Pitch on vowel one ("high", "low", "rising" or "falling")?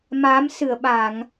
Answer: rising